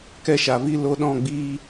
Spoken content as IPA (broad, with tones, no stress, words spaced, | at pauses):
kɛ˧ʃa˨vi˧ lo˧ɗɔ̃˦˨ɡ͡biː˧